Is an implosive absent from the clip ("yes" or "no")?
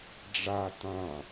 yes